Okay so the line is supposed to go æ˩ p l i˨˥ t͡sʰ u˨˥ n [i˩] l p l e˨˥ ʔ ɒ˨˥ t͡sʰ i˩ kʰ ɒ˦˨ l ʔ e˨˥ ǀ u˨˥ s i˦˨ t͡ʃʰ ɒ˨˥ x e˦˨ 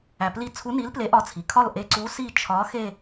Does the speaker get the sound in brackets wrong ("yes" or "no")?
yes